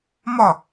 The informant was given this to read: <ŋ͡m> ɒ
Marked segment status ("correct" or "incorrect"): incorrect